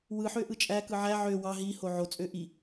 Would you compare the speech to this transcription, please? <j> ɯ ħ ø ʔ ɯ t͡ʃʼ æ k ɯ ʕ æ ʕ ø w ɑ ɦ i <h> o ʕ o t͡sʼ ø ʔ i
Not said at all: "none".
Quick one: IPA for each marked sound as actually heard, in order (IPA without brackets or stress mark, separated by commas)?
w, h